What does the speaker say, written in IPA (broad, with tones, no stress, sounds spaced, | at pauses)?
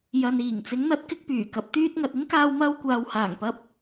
j ɐ˨ n iː˨˩ ŋ t͡s ɪ˨˥ ŋ n̪ ɐ˨˥ t̚ k ɪ˧ k̚ p yː˨˩ k ɐ˨˥ p̚ t̪ yː˥ t̚ ŋ ɐ˧ t̚ ɪ˥ ŋ k aː˧ w m ɐ˧ w kʷ aː˨ w h aː˨˩ ŋ p ɐ˧ p̚